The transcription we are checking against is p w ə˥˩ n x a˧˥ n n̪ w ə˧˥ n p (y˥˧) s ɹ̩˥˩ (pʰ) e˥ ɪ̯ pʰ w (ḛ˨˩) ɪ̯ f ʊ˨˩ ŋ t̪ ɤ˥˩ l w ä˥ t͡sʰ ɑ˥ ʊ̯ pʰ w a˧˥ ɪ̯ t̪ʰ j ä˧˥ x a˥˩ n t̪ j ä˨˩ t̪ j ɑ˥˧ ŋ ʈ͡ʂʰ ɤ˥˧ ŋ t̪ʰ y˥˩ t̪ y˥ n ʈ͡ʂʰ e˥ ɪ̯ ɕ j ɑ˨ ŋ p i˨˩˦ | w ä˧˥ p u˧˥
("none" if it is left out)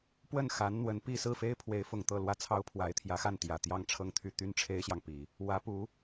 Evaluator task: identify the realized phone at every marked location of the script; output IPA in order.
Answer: i˥˧, f, e˧˥

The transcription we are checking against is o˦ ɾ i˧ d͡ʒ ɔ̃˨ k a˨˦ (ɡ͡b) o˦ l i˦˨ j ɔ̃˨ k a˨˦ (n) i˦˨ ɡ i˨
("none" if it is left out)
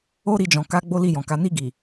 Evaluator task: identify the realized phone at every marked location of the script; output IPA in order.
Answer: ɡ͡b, n

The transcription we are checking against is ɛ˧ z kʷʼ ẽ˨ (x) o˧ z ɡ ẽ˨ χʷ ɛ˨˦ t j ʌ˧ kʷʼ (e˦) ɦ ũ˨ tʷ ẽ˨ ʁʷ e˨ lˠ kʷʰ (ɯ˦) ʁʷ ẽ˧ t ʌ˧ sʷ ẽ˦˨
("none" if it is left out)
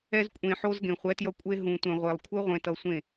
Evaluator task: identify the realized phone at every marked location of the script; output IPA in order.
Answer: ħ, e˧, ɯ˦

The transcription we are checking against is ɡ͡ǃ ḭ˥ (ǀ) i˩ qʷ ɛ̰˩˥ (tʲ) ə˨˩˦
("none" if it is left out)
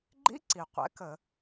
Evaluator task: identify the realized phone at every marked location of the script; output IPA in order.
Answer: ǀ, k

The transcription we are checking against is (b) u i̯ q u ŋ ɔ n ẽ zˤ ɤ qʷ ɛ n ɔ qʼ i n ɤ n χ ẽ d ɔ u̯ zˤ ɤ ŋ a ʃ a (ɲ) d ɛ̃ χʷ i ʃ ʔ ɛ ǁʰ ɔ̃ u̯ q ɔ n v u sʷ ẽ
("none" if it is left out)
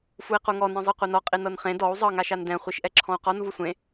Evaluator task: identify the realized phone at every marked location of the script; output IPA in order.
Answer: f, n

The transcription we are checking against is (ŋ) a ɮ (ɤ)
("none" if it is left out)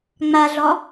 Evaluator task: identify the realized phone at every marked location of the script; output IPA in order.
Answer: ŋ͡m, ɔ

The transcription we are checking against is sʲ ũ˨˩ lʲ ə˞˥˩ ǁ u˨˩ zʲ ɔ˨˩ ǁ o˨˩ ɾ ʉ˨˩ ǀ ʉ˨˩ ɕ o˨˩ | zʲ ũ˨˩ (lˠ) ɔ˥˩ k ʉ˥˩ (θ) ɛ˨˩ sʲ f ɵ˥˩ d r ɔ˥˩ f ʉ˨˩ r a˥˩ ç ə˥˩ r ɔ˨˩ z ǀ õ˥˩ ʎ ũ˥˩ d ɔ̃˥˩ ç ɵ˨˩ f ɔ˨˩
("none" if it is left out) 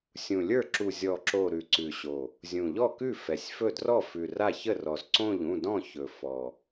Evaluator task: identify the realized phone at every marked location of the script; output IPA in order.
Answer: ʎ, f

